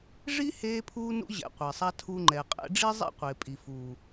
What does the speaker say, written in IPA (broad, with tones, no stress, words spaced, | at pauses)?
ʐi˦ heː˦pʰuː˦nṵ˦ ʑɛ̰˧qʷɛ˨sˤa˦ tʰu˧ŋ͡ǃɛ˨ qʼɛ̰˧ɖ͡ʐi˦zˤḛ˦ qʷe˨pʼi˨fu˨